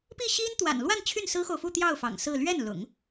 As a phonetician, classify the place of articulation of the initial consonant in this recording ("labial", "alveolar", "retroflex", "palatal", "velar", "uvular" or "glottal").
labial